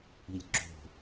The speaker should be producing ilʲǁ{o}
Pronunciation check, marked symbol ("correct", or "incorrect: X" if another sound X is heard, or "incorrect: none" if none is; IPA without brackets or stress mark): incorrect: o̤